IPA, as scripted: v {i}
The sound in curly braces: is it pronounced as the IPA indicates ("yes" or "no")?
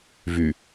no